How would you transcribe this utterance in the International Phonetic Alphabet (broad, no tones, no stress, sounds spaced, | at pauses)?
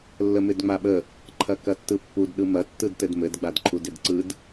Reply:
lː ə m ɪ d ŋ͡m a ɓ ə | ǃʰ ɐ k ɐ tː ɯ pː u d ɗ ɯ m ɐ tː ɯ d t ɘ d m ɘ d ɡ͡b a d ǃʰ u d ɪ d ǀ ɯ d